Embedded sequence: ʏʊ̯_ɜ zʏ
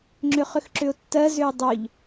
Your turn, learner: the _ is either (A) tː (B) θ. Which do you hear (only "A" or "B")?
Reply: A